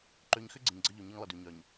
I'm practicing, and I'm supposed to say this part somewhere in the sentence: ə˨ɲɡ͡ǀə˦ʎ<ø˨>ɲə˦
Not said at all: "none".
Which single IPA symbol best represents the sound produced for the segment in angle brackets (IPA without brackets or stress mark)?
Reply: ø˨